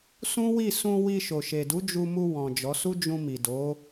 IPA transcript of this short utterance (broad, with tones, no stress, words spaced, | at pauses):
sũ˦wi˦˨ sũ˧wi˧ ʃo˨ʃe˨du˨˦ d͡ʒu˧mu˧ wɔ̃˨ d͡ʒɔ˨˦su˦ d͡ʒũ˧mi˨do˨˦